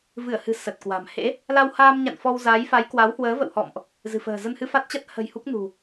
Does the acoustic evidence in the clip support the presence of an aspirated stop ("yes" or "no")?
no